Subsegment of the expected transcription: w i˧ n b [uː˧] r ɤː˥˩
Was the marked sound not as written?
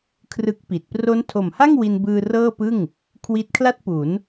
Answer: yes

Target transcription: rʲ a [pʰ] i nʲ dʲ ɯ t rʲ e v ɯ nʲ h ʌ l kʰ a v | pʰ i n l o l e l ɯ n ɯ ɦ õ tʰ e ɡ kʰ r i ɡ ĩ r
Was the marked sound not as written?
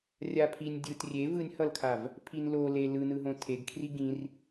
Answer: no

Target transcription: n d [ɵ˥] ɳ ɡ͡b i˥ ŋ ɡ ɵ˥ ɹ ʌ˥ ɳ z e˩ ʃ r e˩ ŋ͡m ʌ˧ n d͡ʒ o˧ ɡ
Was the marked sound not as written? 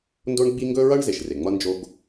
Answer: yes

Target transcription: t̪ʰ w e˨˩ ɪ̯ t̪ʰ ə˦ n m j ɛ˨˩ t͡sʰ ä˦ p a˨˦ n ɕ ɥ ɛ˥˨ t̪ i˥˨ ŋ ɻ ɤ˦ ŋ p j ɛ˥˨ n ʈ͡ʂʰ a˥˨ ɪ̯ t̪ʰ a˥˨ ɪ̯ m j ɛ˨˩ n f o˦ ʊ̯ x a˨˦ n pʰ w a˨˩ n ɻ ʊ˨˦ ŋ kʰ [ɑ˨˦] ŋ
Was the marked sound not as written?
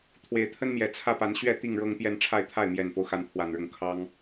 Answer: yes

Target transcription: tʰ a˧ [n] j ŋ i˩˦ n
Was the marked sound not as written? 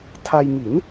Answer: yes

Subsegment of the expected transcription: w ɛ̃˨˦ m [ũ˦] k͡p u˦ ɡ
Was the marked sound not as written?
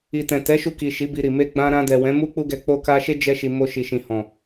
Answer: yes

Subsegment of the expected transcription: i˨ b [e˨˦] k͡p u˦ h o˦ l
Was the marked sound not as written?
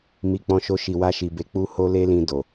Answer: no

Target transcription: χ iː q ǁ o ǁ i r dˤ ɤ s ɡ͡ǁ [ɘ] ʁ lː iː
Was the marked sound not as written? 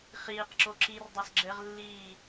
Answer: no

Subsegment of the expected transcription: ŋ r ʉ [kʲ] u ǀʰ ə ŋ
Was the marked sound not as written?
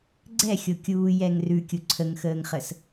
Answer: no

